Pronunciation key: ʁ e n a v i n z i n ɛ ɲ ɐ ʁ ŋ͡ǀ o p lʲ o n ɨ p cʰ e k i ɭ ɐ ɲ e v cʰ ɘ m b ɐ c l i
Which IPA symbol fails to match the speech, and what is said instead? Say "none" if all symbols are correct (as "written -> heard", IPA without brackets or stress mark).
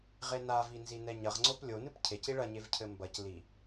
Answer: k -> c